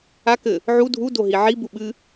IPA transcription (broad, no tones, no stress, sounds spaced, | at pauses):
a k ɘ | ʕ u dʱ u d o ɦ i ʕ i b u ɓ ɨ